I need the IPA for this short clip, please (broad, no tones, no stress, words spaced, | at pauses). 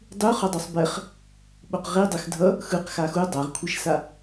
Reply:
dˤu χʌdˤosˤbɛχ | ɓoqʁi dˤɛxdʱʌ | xɯq xaxu dˤaʁkʷʰeʃsa